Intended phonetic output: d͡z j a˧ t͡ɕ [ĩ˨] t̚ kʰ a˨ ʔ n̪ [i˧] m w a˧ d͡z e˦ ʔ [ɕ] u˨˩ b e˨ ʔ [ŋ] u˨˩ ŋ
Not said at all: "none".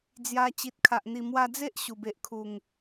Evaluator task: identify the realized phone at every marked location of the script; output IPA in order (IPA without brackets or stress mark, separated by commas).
i˨, i˨˩, ɕ, kʰ